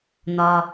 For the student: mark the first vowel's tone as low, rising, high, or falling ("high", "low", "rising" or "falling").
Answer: low